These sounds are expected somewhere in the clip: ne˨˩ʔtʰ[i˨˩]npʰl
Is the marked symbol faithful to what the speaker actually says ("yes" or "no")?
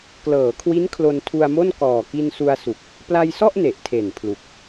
no